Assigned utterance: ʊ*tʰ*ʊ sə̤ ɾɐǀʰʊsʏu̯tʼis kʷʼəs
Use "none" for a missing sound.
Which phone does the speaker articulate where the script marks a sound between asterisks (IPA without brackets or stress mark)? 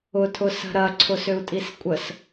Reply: tʰ